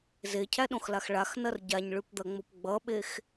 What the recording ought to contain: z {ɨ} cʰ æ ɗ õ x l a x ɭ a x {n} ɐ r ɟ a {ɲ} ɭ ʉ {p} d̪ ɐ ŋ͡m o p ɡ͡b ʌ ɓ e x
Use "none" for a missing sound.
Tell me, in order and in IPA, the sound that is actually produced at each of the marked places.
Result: e, n, ɲ, p

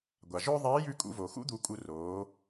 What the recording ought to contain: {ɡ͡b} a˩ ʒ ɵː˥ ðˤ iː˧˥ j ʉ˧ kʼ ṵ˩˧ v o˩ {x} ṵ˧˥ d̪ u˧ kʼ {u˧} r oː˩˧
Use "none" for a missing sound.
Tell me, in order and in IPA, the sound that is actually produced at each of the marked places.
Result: ɡʷ, x, u˧

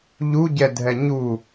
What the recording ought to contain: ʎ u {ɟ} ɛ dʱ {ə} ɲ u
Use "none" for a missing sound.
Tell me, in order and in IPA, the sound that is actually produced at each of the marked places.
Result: ɟ, ɛ

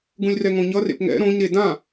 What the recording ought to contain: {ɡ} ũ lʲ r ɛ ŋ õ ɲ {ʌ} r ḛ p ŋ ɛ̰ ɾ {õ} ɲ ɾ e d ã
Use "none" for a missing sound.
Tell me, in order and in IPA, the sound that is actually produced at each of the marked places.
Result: ɡ, ʌ, õ

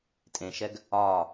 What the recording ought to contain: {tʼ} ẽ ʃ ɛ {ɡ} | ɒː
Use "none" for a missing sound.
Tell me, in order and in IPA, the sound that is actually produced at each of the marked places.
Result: tʼ, ɡ

